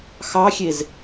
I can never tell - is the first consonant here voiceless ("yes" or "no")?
yes